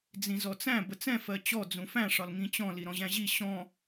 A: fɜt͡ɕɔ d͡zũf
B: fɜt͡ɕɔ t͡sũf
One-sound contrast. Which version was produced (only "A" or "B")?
A